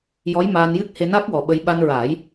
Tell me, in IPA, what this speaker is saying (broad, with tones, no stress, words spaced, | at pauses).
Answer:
jɔ˧˥jmaː˧njɨ˦˥k̚ he˧na˦˥k̚wɔ˨˩ ɓə˧j ɓa˧nɹaː˨˩˦j